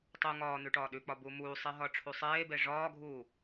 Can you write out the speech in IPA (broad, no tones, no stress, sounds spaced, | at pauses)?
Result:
tˤ u ŋ ɒː n̪ ʉ ʈ ɒː ɗ ʉ k͡p ɒ b u m uː sˤ e ɦ ɒ ʈ͡ʂʰ u sˤ eː b e ʐ ɒː ɡʱ uː